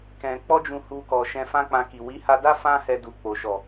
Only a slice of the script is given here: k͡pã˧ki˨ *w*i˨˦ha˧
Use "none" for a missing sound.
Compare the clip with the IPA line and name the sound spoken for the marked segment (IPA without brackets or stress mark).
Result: w